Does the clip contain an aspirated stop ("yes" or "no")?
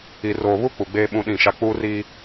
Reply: no